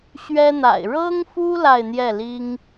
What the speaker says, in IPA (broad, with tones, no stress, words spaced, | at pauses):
ɕɥɛ˥n̪a̰˨˩ɪ̯ ɻɤ˥ŋfu˥ la˥˧ɪ̯n̪jɛ˥˩li˥ŋ